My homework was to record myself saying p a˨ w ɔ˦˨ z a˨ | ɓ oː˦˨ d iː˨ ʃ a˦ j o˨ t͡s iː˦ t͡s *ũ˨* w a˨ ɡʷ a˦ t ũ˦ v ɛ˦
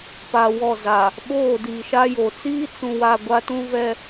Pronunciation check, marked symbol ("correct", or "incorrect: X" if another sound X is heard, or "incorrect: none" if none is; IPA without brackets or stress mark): correct